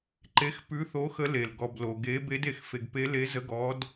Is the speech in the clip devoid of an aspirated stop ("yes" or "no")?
yes